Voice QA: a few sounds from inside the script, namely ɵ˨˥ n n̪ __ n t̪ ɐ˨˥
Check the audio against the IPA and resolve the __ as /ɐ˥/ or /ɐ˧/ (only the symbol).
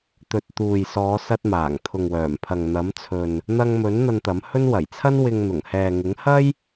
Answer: ɐ˧